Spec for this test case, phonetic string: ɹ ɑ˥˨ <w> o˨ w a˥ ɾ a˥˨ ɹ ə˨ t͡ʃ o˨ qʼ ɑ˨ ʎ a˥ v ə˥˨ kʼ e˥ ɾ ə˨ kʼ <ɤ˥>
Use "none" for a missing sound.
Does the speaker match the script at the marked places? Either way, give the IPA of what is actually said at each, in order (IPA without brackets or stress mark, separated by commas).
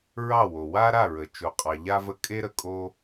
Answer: w, o˥